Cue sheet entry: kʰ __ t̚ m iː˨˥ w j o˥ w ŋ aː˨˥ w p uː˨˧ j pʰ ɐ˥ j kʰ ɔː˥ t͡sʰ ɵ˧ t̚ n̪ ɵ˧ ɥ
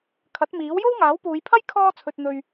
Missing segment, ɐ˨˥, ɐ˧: ɐ˨˥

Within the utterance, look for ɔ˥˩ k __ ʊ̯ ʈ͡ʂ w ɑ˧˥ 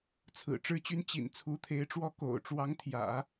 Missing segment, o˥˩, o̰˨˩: o̰˨˩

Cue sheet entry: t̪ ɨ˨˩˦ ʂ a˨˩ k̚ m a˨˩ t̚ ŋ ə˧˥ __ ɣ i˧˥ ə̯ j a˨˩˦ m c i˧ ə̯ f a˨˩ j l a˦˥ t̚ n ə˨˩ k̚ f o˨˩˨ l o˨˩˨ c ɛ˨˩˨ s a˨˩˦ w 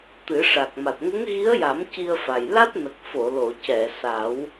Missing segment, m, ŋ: ŋ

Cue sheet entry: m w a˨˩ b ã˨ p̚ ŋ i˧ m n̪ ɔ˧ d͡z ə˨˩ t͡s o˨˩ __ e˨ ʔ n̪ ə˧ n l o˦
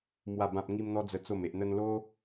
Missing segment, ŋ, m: m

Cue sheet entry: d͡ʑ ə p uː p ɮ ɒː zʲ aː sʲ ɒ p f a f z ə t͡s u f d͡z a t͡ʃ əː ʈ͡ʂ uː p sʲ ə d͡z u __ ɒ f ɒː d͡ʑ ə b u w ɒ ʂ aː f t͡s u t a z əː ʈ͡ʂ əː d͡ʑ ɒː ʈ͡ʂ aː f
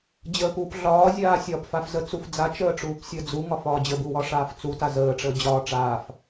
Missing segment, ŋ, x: ŋ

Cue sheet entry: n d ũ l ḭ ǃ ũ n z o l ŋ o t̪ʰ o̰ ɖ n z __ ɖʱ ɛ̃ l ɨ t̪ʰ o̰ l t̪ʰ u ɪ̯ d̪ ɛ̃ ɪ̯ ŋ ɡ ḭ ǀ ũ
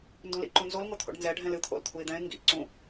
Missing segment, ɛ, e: ɛ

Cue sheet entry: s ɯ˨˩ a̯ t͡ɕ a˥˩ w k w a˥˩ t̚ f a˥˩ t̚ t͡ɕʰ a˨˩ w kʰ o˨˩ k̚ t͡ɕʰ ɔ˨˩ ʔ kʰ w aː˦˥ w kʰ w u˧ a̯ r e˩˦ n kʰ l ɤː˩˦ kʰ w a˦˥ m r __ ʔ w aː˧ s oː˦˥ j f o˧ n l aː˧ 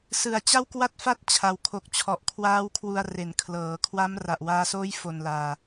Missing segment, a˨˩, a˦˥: a˨˩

